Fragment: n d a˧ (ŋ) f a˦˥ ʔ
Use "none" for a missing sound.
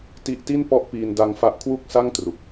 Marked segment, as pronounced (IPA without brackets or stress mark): ŋ